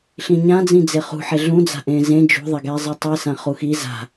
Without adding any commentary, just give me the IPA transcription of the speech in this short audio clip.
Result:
ɬ ĩ ɲ ã d͡z ĩ d͡z e χ ṳ ħ e ɮ ũ d͡z a̤ ʔ ẽ z ẽ d͡ʒ ṳ ðˤ e ɡ ɛ zˤ i tˤ i s ã χ u x i z a̤

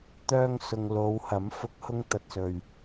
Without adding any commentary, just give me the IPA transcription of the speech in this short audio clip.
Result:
t̪ œː˥ ŋ s ʊ˧ ŋ l o˨˧ w h ɐ˨˥ m f ʊ˨˥ k̚ h ʊ˧ ŋ t̪ ɐ˨ t̚ s ɵ˨ ɥ

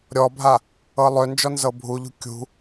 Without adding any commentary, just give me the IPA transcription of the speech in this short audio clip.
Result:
ɾʲ ɔ bʱ a | ɤ lˠ ø n d͡ʒ ɔ n z ɤ bʱ u ʎ ṳ kʲ ṳ

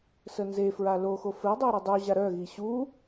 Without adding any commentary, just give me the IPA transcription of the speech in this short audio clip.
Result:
s ə n z e f ɹ a l o x o f ɘ i̯ dˤ ɘ i̯ ɾ i dˤ u ʑ a ɾ œ ɣ i ɕ u

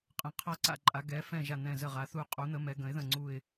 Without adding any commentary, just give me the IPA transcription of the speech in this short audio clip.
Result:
qʼ ə̃˩˧ qʰ a˧˩ ǀ a̰˧˩ ǃʼ a˩˧ ɡ ɛ˩˧ f ɛ̃˧˩ ʒ a˧˩ n̪ ɛ̃˧˩ z ə˧˩ ʁ a˩˧ θ u˧˩ qʼ u˩˧ n̪ ə˩˧ m ɛ˩˧ ɡ ə̃˩˧ ɪ̯ ð ə̃˧˩ ŋ͡ǀ u˧˩ ɪ̯

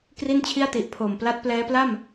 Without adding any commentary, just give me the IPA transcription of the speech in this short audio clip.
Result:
k r i˥˩ n t͡ɕʰ i˥˩ a̯ t i˨˩ ʔ pʰ oː˨˩ m p l a˦˥ t̚ p l ɛː˦˥ p l a˥˩ m

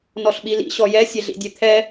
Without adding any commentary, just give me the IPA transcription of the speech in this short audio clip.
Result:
n ɔ ɬ ɓ i l ḭ ɕ ɔ j ɛ sʲ ɛ ɮ ḭ dʲ e t̪ʰ ɛ

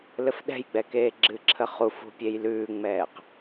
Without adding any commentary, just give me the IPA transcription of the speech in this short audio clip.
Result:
l ɘ f ɗ ɛ̤ j ɡ͡b ɛ k eː ɡ͡ǁ ɨ ǁʰ ə χ u f ṳ pʲ e j l ʉː ŋ͡m ɛː q

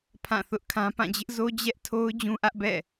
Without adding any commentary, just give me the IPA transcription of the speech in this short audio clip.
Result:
pʰ ã˦˨ θ ʊ˦ ʔ kʰ ã˦ p ã˦˨ d͡ʑ ɪ˦ ʔ z o˦ d͡ʑ ɛ˦ ʔ tʰ o˦ ʊ̯ d͡ʑ ũ˦ ʔ ä˦ ʔ b ɛ̰˦˨

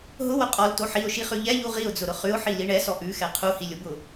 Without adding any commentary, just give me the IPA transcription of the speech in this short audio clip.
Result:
ɦ ʊ w ʊ qʼ ɔ l t o ħ i ʊ̯ ʃ i χ ʉ ʎ ɛ ʎ u ʁ i ʊ̯ d͡z ʊ ɾ ʊ χ ʉ ʊ̯ ħ i l i ɳ ɛ s ɔ ʔ ʉ x ɛ qʰ u h i lʲ ʊ b ʊ

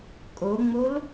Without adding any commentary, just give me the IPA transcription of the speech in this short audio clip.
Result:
kʼ o ŋ͡m o l

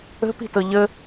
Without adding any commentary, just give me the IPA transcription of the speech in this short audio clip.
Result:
ə̤ p i̤ t ɤ ʎ ə

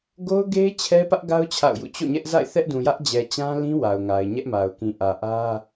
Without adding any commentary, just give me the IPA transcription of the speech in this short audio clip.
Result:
ɡ o˦ ʊ̯ ɡ e˦ ɪ̯ t͡ɕʰ ɛ˦ p ä˦ ʔ ɡ a˦ ʊ̯ t͡ɕʰ a̰˦˨ ʊ̯ j ṵ˦˨ t͡ɕ o̰˦˨ ɲ ɛ˦ ʔ z a̰˦˨ ɪ̯ θ ɛ˦ ʔ d ũ˨ j ä˦ ʔ d͡ʑ ɛ˨ t͡ɕ ã˦ l ĩ˦ w a˨ ʊ̯ ŋ a˨ ɪ̯ ɲ ɛ˦ ʔ m a˨ ʊ̯ k ĩ˨ ʔ ä˨ ʔ ä˦

